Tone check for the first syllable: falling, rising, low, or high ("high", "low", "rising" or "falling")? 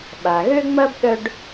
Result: low